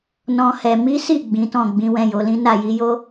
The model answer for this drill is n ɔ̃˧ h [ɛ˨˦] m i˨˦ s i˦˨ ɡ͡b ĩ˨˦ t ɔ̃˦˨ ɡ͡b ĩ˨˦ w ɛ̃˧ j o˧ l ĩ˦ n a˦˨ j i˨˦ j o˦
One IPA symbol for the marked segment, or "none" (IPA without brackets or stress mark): ɛ˨